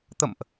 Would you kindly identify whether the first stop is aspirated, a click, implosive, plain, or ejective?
plain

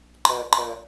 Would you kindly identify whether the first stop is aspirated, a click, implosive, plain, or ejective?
click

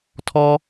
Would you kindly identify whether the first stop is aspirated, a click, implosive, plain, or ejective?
aspirated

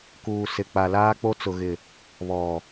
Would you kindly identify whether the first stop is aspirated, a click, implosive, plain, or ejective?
plain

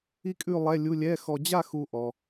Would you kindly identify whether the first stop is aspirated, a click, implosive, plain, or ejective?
ejective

